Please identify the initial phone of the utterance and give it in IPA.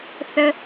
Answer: θ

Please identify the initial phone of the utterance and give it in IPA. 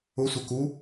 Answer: ʊ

